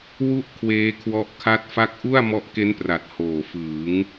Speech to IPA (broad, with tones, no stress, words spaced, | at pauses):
wu˥˩ʔ kʰweː˦˥kʰwɔ˦˥ʔkʰa˥˩t̚fa˥˩k̚ ʔu˥˩a̯ mɔ˦˥ʔke˦˥npra˨˩t̚ hoː˨˩fɯː˩˦ŋ